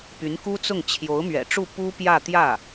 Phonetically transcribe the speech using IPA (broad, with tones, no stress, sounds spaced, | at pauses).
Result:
p y˧˥ n k u˥ t͡s ʊ˥˩ ŋ t͡ɕʰ j o˧˥ ʊ̯ m ɥ ɛ̰˨˩ ʈ͡ʂ u˥˩ p u˥ p j ä˥˧ t̪ j ä˥˩